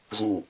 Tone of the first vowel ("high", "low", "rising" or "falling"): low